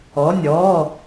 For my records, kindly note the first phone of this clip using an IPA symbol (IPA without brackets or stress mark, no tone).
ɔ